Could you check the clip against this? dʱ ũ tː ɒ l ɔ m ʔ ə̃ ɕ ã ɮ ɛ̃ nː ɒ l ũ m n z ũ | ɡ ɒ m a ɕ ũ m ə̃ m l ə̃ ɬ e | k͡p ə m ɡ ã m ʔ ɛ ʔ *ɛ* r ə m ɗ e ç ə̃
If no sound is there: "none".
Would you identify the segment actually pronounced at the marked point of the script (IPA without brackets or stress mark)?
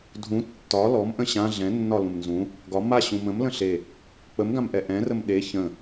ɛ̃